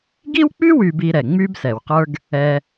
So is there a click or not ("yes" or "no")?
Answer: no